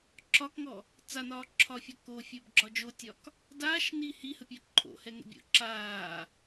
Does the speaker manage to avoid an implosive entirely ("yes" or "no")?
yes